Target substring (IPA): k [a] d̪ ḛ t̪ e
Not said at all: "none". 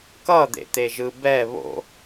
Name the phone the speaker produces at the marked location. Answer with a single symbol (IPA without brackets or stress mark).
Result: ʌ